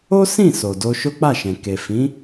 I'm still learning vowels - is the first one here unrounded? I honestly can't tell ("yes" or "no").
no